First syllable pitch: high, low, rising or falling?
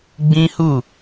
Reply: high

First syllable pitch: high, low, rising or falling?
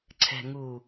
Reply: low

